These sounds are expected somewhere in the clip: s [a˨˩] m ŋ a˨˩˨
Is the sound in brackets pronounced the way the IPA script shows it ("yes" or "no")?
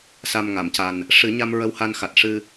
yes